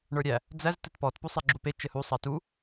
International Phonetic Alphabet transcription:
ɳ ə˞ ɾʲ æ | d͡z æ z t ɘ t p ɔ t p u sˤ ɛ ɡ͡ǁ u p e t͡ʃ ɘ h u sˤ ɑ t u

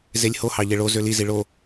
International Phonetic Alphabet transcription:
z e lʲ h o h ɑ ʎ e ɭ o z ø l i z i ɭ o

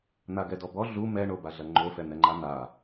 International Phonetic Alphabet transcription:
n̪ a ɡ ɛ d ɔ b ɔ ɮ u m ɛ ɳ o b a ɮ ɐ ŋ͡ǃ o f ɛ n̪ ɛ ŋ͡ǃ a n̪ a

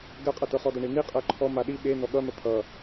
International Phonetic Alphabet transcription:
ɡ ɜ qʼ ʌ t ɤ χ ɔ d ʌ ɳ i n i qʼ ɜ ǃʰ ɔ m a ɗ i ɓ e n ɔ ɠ ʌ n̪ ʌ t̪ʰ ʌ

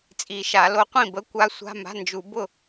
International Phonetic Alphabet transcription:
t͡sʼ i˨˩˦ ʃ a˨˩˦ l o˨˦ qʷ ĩ˥˩ b ə˧˥˧ kʷ a˦˥ sʷ a̤˧˥˧ m a̤˧˥˧ n d͡ʒ u˨˩˦ b ʊ˥˩

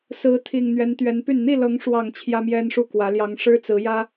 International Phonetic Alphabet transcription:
s ɹ̩˨˦ t̪ʰ i˨˩ ŋ n̪ ɥ ɛ˨˦ n t̪ ɥ ɛ˨˦ n p y˥˨ n n̪ i˥˨ l ɤ˨˦ ŋ ʂ w ɑ˨˩ ŋ t͡ɕʰ j ä˦ m j ɛ˦ n ʂ u˥˨ k w ä˨˦ l j ɑ˨˦ ŋ ʂ ɻ̩˦ t͡s ɹ̩˨˦ j ä˦

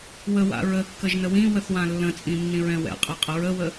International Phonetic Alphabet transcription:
w ə w a̰ ɹ ə kː ə ʒ n ə w ĩ w ə θ w ã lː ə̃ t͡sʼ ĩ nː ĩ ɹ ɛ̃ w ɛ̰ qʼ ɛ qʼ ə ɹ ə w ə

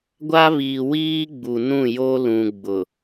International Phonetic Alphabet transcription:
ɡʷ a˦ β iː˨ w iː˦ ɡ͡b u˨ n ũ˦˨ j o˦ l ũ˨ ɡ͡b ʊ˨

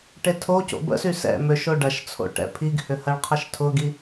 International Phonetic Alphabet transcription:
ʈ e tʰ o c o̰ b ə̰ s y s ɛ̰ m ø ʃ o ɖ ɐ ʃ t͡sʰ o̰ ʈ ɛ̰ pʰ i ɡ h ʏ h ɐ ɭ qʰ ə ʃ tʰ ʊ ɡ i

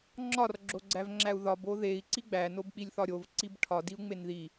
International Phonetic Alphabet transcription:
ŋ͡ǁ ɒ r ɡ͡ǁ o ɡ͡ǀ æ v ŋ͡ǁ æ u̯ ð ɒ b o ð e i̯ ǀ i ɡ͡b æ n o b k͡p i lʲ θ ɒ ɾʲ o v ǀ i b ʈʰ ɒ d i u̯ ŋ͡m e n ð i

